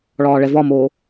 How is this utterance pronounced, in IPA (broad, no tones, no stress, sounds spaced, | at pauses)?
ɭ ɒː ɭ ɛ v ɒ m oː